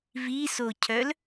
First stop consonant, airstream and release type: aspirated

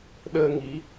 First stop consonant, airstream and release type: implosive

